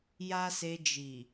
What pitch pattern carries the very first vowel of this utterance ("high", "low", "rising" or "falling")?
high